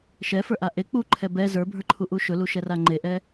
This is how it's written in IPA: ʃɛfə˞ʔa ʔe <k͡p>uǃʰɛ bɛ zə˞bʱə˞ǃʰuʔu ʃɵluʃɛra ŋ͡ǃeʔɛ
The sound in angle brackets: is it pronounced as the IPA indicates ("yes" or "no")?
yes